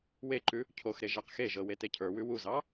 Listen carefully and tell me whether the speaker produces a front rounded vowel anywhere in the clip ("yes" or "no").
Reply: no